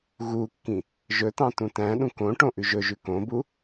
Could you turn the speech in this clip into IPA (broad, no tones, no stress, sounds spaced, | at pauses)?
ɣ u kː ĩ | ʒ ɵ t ɑ̃ t ũ t æ̃ ɗ ũ k õ ʈ õ ʔ ʉ ʒ ɵ ʒ ʉ k õ b u